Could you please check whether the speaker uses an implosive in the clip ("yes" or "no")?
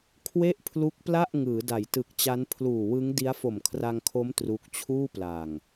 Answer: no